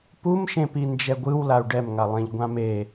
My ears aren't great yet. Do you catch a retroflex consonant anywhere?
yes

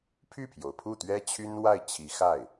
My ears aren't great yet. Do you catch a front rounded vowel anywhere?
yes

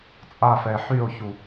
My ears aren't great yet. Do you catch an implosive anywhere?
no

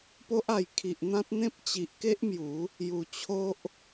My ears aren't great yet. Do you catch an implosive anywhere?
no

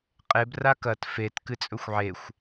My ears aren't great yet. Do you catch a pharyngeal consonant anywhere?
yes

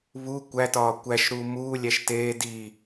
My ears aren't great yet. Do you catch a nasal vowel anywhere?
no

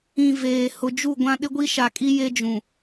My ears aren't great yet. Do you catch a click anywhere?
no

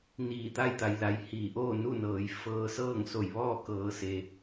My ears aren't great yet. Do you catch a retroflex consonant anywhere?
no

